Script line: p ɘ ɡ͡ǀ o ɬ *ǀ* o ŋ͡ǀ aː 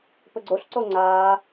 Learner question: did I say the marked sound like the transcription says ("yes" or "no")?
yes